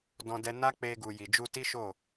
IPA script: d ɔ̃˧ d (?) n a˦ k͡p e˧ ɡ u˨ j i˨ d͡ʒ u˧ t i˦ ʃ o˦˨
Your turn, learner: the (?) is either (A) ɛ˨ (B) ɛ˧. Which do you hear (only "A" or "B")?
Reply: B